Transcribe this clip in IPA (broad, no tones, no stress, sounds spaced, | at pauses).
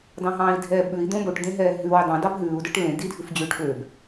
d ɑ̃ ɦ ɑ̃ː i̯ dʱ ɛː b ɓ ʉ i̯ d̪ õ b o ʈ d̪ ẽ ɦ ɛː ɦ ʉ w ø dˤ ɑ̃ d ɑ b ɦ ʉː u̯ d œ ʈ l ẽ d i dʱ ʉ f d͡ʑ ʉː ʈ ɓ ø b